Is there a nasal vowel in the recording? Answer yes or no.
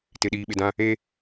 yes